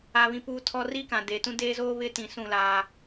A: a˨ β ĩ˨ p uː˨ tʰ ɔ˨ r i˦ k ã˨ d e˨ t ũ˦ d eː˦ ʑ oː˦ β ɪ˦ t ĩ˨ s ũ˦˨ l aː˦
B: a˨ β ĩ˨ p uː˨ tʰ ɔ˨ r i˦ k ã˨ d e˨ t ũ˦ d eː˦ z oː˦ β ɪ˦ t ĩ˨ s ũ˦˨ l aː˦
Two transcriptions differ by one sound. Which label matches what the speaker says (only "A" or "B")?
B